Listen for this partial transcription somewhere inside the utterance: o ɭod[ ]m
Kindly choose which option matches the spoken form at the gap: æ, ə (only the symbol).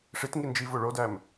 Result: æ